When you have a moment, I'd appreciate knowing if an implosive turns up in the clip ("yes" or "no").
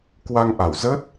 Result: no